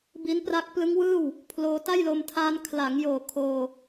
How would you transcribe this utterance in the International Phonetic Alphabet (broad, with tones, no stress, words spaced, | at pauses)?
bi˦˥npra˦˥k̚ plɯ˦˥ŋwɯː˥˩w | pʰloː˧ta˥˩jlo˧m tʰaː˧n kʰla˩˦ŋjoː˨˩ kʰoː˧